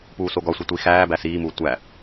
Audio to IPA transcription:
p uː s o ɡ ɒ sʷ e tʷ i x æː b æ s iː m uː tʷ æ

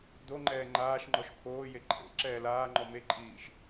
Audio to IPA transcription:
d o ŋ͡ǃ ɛː ŋ͡ǃ aː ʃ ŋ͡ǃ ɔ ʃ pʰ oː j e ǃʼ ḛ ǁ ɛː l aː ŋ͡ǃ ɔ m e ǃʼ iː ʃ

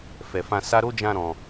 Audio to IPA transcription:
f ɛ˨ f ã˧ s a˧ ɾ o˦ d͡ʒ ã˧ ɾ ɔ̃˨

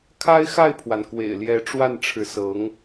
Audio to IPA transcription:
kʰ a˥ ɪ̯ x a˥˩ ɪ̯ pʰ w a˩ n k w ḛ˨˩ ɪ̯ l j ɛ˧˥ ʈ͡ʂ w a˥˩ n ʈ͡ʂʰ ɻ̩˧˥ s ɤ˧˥ ŋ

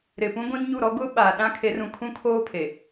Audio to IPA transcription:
ɾ ɪ˨ p ũ˦ ɡʷ ĩ˦ n ɲ u˦˨ ɾ ɔ˦ ɡ ʊ˦ ɓ aː˨ ɗ ã˦ kʰ e˨˦ r ũ˨ kʰ ũ˦ kʰ oː˦ pʰ e˨

